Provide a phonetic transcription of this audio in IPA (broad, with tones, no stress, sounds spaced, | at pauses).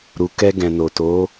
ɾ u˨ k ɛ˧ ɡ ɛ̃˨ n o˨ t o˨˦